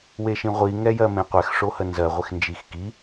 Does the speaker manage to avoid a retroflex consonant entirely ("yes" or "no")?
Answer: no